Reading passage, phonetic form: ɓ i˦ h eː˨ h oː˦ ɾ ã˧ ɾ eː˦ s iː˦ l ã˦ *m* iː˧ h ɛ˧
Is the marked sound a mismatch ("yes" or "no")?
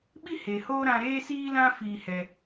yes